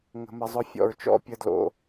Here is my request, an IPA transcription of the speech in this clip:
ŋ ə̤˨ m ə˨ zˤ ʊ˦ fʲ ɔ̰˨ ɹ t͡ʃ ɔ̰˦ pʲ ə˦ d l o̰˨

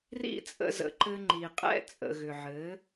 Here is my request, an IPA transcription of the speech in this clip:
r ḭ˦ t͡sʼ ə̰˧ z ə̰˨ ǃ ɘ˧ ŋ͡ǃ i˨ qʼ ɛ̰˦ t͡sʼ ə̰˨ ɣ ʏ˨ ʕ ɘ˨˦

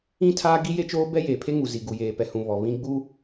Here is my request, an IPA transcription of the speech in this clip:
ĩ˦ tʰ aː˦ ɡ i˦ j e˦ t͡ʃ oː˦ b ɛ˦ j eː˨ pʰ e˦ ŋ u˨ z i˨ ɡ u˨ j eː˨ p ɛ˨ h ũ˨ β ɔ˨ β ĩ˦ ɡ͡b u˦

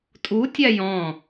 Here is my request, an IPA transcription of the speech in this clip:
tʼ u tʲ a j ɔ̃

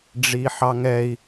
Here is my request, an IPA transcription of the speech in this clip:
ɖ͡ʐ i ħ ɑ ŋ ɛ i̯

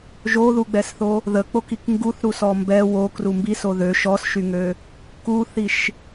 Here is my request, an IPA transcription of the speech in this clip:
ʒ o ð u ɡ͡b ɛ s θ o | ð ə k͡p o k i k ŋ ɡ u θ ɾ u s ɔ m b ɛ w o k r u m b i s o ð ø ʃ ɔ s ʃ y ŋ ø | k u θ i ʃ

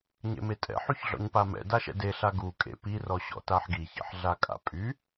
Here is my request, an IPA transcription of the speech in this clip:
ɲ ḛ m e tʼ ɛ̰ ħ y ç ɮ ɔ̰ ɲ p a m ɛ̰ d a ʃ ɛ̰ d e ɬ a ɡ u kʼ ḛ p i r ɔ ɕ ɔ̰ t a ħ ɡ i ç ɛ̰ ħ ɮ a kʼ a̰ pʼ y

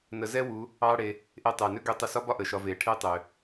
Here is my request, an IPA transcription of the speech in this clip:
n ə˨˦ z ɛ˥ w u˨˦ | ɑ˥ ɽ e˨˦ | ʔ e˦˨ tˤ ɛ˨˩ n ø˥ ɡ ø˥ tˤ ə˥ s ɒ˥ b ɒ˥ ʔ ə˨˩ ʃ ɒ˨˦ v e˨˩ ʈʰ e˥ tˤ ø˨˩

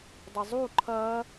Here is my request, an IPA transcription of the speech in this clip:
dˤ ə zˤ u ǃʰ ɐ

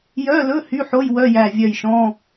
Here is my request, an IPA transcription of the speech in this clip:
j œ˧˥˧ l ɵ˧˥˧ h y˧˥˧ ħ o˧˥˧ j w œ˧˥˧ j æ˧˩ vʲ œ˧˩ j ʃ ɔ̃˧˥˧

